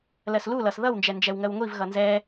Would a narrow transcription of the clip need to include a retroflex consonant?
no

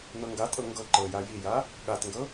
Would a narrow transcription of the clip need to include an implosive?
yes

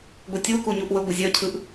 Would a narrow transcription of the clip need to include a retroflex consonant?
no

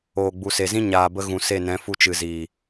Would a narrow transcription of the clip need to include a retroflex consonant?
no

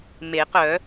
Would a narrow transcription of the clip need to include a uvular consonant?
yes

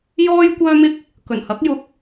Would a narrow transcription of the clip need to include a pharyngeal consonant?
no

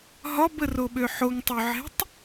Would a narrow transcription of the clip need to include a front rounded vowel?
yes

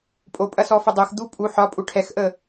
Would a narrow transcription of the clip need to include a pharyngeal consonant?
yes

